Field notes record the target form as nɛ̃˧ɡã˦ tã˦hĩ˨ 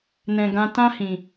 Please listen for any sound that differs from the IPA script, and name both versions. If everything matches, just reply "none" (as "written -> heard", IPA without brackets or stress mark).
none